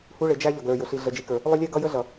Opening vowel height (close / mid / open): close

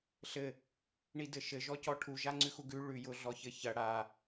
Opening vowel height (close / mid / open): mid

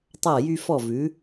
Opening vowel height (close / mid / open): open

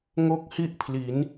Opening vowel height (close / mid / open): mid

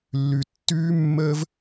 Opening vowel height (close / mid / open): close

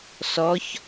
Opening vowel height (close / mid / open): mid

